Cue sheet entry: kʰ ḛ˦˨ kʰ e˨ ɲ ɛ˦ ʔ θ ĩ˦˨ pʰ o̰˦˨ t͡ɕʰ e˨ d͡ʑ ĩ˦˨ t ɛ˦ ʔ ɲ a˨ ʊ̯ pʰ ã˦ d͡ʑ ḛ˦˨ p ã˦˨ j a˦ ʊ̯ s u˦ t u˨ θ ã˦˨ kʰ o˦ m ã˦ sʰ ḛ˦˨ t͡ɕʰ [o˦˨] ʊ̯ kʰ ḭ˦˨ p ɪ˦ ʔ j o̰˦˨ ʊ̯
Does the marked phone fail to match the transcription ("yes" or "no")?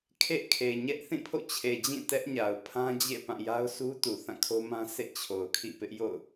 yes